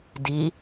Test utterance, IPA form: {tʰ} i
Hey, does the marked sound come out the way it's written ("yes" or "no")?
no